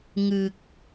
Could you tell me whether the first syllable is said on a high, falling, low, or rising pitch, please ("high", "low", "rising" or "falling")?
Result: low